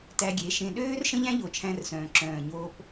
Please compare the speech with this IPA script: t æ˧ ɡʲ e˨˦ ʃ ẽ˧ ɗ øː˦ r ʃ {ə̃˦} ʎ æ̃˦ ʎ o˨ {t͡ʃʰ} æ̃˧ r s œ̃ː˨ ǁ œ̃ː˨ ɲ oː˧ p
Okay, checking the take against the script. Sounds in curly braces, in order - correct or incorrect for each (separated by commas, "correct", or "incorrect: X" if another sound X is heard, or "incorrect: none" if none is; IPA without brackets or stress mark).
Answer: correct, correct